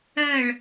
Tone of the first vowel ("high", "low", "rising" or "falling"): falling